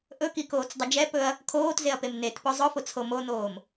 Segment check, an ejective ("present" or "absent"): absent